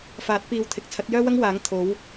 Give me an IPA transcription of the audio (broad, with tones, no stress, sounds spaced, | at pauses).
f aː˨˥ t̚ p iː˨ w t̪ʰ ɪ˨˥ k̚ t͡sʰ ɐ˨˥ t̚ j œː˥ w ɐ˥ ŋ w aː˨˥ ŋ t̪ʰ o˨˥ w